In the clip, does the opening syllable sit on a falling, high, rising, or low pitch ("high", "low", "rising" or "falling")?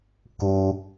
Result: low